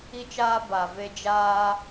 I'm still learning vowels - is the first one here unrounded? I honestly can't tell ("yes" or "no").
yes